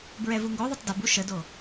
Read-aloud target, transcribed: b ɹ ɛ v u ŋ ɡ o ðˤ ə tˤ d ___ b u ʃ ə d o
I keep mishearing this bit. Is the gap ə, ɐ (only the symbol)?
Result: ɐ